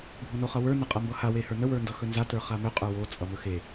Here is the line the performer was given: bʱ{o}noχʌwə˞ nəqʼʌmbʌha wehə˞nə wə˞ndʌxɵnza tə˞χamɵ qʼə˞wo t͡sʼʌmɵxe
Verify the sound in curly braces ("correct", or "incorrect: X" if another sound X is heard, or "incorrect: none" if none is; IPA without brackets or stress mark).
correct